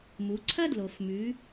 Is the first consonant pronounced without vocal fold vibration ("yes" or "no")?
no